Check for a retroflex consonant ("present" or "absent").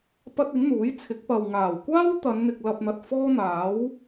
absent